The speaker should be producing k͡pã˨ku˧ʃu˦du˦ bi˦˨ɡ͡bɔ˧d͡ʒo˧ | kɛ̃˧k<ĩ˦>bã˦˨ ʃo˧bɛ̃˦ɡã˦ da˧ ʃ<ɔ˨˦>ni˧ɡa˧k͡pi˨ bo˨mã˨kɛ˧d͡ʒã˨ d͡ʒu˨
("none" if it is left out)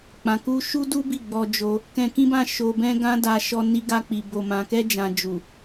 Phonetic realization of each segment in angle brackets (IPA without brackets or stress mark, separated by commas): ĩ˦, ɔ˧